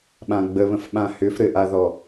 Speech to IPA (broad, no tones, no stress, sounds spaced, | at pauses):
ɓ ã ɡ͡b ə β ə̃ f ɓ ã h ʏ f ɾ ɘ ʔ a ð ɔ